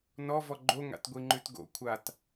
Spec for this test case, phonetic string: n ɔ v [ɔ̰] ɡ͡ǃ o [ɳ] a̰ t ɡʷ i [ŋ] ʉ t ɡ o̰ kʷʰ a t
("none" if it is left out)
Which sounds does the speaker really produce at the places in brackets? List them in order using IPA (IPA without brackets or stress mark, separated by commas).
ɔ, ŋ, ŋ͡ǃ